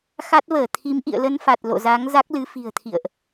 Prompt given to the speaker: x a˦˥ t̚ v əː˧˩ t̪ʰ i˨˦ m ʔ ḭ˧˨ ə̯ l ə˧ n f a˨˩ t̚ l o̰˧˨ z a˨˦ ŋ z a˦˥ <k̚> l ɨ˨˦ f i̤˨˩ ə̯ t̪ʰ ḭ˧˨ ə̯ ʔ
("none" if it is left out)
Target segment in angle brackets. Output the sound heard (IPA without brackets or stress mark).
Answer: k̚